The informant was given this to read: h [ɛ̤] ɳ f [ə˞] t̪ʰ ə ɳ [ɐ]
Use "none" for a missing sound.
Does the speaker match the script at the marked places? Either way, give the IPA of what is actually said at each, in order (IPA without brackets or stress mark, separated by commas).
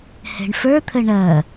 ɛ̤, ə˞, ɐ